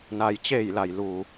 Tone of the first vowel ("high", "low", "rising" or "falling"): low